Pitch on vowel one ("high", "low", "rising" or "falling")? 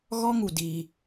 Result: high